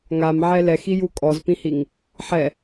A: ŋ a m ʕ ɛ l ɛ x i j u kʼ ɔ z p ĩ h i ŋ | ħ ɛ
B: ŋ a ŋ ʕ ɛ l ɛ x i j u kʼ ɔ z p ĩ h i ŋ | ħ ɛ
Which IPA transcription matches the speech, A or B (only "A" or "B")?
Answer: A